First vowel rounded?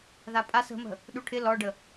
no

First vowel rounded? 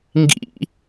no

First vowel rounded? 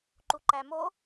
yes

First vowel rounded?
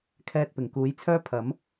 no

